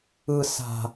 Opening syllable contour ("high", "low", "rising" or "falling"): high